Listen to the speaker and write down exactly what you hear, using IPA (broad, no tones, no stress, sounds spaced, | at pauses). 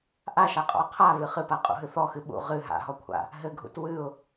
ʔ a ʃ a qʼ ɔ̰ ə̯ qʰ a β ɨ χ ɨ p a qʼ ṵ ɦ ɨ θ ɔ x ɨ ɓ ṵ ʁ ɨ ɦ a̰ ɦ ɔ kʷʰ a̰ | ɦ ɘ ɡʱ ṵ t w ɨ ʊ̯